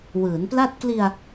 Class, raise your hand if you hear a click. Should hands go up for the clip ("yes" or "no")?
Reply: no